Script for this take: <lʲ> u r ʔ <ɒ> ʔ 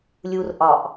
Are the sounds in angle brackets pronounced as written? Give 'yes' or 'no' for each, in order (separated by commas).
yes, yes